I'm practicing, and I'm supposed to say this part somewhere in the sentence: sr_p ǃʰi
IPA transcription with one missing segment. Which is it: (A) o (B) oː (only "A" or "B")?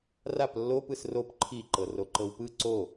A